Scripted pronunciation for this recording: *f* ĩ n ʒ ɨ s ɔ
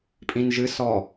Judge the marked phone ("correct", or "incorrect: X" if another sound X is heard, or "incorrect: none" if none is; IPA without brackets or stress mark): incorrect: pʼ